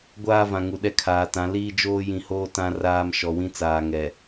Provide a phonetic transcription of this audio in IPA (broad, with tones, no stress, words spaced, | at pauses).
ɡʷaː˦vã˨ ŋu˨ɗɛ˦ kʰaː˨tã˨˦ liː˦d͡ʒoː˦jĩ˨hoː˦ tã˦ raː˦m ʃɔ˨wĩ˦ t͡saː˨ ŋɛ˨